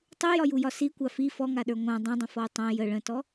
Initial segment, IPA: tˤ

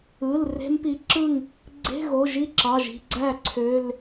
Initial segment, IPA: ɯ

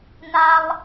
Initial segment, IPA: n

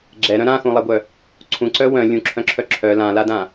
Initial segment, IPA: ɡ͡ǁ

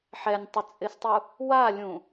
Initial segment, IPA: ħ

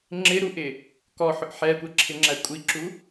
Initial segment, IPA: ŋ͡ǁ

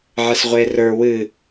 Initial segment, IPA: ʕ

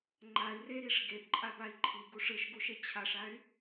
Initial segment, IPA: ŋ͡ǃ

